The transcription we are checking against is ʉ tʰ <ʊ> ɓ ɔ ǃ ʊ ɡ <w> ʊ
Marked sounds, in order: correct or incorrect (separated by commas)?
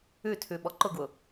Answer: incorrect, correct